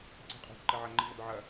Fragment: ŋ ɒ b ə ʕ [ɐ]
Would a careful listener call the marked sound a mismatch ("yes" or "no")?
no